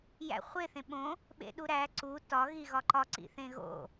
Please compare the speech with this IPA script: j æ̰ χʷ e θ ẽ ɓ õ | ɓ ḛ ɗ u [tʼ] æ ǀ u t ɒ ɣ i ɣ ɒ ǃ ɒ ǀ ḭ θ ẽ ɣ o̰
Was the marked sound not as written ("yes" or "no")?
yes